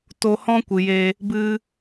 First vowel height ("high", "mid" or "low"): mid